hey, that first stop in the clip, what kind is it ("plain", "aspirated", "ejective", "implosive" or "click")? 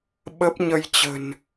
implosive